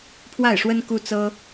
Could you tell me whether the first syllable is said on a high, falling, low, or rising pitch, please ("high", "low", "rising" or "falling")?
falling